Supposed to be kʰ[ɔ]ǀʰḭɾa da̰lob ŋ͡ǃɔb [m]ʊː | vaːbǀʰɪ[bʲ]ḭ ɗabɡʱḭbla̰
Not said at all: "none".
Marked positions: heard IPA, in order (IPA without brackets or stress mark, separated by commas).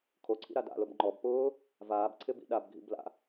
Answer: o, p, b